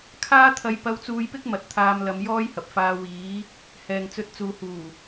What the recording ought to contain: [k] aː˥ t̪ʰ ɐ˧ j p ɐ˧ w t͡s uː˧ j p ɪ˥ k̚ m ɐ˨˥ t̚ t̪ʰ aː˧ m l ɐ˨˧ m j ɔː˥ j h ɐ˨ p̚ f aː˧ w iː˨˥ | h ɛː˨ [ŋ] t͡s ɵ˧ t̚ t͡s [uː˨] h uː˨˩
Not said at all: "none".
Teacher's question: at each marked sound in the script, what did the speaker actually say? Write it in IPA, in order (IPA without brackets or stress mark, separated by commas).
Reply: kʰ, ŋ, uː˨